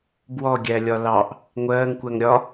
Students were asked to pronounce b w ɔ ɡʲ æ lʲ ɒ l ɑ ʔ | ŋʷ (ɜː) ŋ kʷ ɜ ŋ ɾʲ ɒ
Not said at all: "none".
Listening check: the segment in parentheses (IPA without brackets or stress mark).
ɜː